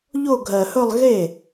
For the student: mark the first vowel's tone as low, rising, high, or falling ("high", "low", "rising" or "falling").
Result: falling